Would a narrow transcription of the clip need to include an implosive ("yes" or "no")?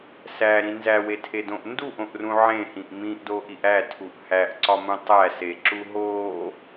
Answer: no